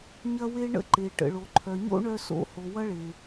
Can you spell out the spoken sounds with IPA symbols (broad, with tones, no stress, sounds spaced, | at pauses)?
ɲ ɐ˦ w e˦ ɳ ə̰˦ ǃ e˨ ʈ ə̰˨ ɭ o˨ ǃʰ œ˨ ɲ o̰˦ ɳ œ˧ s o̰˨˦ h o˨ w ɐ˦ ɭ e˨